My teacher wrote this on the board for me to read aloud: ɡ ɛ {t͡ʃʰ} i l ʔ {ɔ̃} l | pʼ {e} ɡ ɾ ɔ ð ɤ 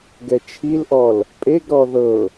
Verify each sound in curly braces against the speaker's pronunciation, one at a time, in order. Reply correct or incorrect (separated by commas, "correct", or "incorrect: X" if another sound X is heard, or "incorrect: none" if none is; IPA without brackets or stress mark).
correct, incorrect: ɔ, correct